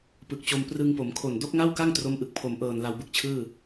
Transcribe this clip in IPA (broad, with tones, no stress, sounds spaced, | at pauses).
p ɯ˨˩ k̚ t͡ɕ o˧ m p r ɯ˧ ŋ p o˩˦ m kʰ o˨˩ n d o˦˥ k̚ ŋ a˥˩ w k a˥˩ ŋ t r o˦˥ m ʔ ɯ˨˩ k̚ pʰ o˩˦ m ʔ ɤː˨˩ n l a˧ w b ɯ˦˥ k̚ t͡ɕʰ ɯː˥˩